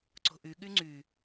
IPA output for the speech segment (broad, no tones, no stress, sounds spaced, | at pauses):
ǀ o̤ ʔ y ɠ y ŋ͡ǀ y